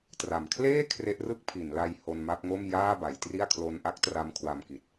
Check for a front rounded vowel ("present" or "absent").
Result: absent